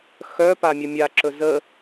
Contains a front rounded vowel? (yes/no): yes